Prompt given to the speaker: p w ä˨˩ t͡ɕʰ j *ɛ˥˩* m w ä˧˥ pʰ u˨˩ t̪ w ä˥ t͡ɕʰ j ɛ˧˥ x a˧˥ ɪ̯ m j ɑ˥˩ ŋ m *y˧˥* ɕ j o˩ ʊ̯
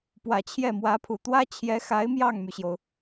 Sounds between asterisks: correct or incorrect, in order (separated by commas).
correct, incorrect